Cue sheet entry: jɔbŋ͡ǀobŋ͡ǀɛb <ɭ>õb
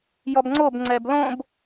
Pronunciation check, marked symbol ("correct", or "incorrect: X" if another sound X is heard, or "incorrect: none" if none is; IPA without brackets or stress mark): incorrect: l